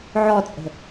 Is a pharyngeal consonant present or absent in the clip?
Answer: present